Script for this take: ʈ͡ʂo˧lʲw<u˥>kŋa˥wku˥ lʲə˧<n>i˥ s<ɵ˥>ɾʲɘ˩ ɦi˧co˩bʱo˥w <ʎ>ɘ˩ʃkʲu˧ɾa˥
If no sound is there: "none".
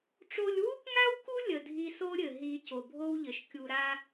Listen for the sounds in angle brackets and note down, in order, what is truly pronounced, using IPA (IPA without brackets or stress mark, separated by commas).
u˥, dʱ, o˥, ʎ